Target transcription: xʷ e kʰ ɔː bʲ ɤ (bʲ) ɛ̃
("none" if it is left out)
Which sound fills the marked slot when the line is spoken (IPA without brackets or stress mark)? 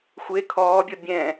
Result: bʲ